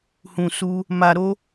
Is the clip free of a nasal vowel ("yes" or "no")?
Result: no